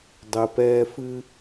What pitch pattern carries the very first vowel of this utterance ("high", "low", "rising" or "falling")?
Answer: low